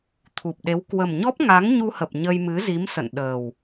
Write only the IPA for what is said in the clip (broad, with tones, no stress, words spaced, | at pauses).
t̪ʰu˨˩p̚ɗe˨˦w kwə˨˩mɲɔ˦˥p̚ŋa˨˦ŋ ɲu˧hə˨˩p̚ ɲə˧jmɨ˨˦zi˨˦msə̰˧˨n ɗəː˨˩w